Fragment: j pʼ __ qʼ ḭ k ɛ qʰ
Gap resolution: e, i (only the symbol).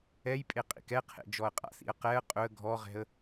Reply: e